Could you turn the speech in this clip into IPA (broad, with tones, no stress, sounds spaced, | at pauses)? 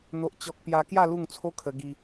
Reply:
n̪ o˦ ʔ t͡ɕ ɔ˦ k̚ p j a˧ k j a˥˧ l u˥˧ ŋ t͡sʰ o˦ kʰ ə˧ ɡ i˧